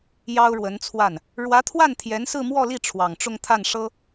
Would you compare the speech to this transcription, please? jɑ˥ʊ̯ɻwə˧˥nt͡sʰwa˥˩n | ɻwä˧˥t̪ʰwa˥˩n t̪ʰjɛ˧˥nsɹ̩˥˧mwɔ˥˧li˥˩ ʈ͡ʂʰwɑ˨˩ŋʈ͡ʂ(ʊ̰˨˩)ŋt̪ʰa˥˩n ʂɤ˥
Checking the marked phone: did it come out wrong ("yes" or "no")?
yes